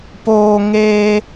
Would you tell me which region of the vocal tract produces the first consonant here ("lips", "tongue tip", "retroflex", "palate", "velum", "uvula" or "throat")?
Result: lips